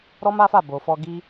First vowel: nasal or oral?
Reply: oral